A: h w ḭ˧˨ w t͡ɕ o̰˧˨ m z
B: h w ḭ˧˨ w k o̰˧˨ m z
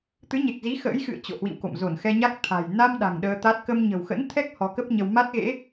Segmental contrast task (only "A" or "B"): B